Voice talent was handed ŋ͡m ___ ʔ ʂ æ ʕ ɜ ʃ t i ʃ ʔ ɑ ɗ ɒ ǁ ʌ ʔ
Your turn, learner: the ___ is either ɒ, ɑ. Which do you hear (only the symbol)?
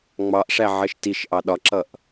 ɑ